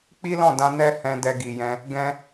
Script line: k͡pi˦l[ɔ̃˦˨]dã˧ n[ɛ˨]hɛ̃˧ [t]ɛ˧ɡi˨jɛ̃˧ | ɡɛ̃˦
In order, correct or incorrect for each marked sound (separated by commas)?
correct, incorrect, incorrect